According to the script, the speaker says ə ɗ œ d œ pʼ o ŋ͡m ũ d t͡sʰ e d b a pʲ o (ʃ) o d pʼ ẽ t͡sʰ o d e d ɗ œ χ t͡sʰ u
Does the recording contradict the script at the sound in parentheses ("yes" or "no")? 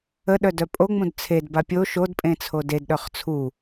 no